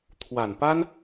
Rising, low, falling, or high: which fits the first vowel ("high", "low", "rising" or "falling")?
low